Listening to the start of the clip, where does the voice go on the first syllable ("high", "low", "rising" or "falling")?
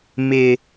high